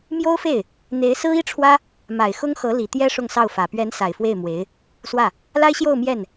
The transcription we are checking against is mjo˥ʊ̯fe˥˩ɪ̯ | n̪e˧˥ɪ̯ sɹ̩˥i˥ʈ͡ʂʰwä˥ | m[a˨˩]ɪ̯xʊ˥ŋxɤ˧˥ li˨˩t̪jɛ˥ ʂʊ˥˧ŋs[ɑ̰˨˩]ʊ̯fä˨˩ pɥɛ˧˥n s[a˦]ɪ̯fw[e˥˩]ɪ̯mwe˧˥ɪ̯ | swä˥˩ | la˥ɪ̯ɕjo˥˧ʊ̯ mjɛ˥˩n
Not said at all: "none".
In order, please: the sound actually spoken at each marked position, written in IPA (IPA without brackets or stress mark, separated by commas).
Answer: a˨˩, ɑ˥˩, a˨˩, e˥˩